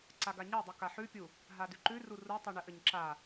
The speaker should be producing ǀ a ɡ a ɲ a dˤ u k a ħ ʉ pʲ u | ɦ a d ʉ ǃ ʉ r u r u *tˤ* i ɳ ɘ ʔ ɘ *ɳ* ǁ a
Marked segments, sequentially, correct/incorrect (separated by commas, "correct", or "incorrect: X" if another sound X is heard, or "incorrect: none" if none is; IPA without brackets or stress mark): correct, incorrect: ɲ